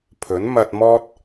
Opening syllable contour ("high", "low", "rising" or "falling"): rising